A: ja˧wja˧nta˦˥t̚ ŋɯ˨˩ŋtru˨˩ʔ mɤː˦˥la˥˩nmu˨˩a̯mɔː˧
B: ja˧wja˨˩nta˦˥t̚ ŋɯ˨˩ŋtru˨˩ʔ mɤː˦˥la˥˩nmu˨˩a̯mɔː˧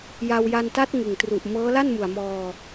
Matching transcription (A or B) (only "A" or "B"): A